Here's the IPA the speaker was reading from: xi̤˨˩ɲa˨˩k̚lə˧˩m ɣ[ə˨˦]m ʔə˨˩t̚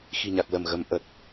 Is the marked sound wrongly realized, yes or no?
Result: no